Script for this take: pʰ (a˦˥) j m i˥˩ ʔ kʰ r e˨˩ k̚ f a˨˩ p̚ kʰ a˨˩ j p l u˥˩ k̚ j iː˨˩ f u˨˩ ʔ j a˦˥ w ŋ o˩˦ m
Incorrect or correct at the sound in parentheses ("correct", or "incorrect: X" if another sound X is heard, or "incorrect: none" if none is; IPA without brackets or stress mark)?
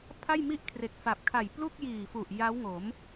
incorrect: a˥˩